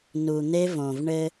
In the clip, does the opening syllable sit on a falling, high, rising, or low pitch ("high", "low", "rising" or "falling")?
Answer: low